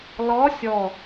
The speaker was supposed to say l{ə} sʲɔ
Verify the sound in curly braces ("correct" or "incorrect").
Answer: incorrect